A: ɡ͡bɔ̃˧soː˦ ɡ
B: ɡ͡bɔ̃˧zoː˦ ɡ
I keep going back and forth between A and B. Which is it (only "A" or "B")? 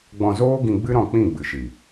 B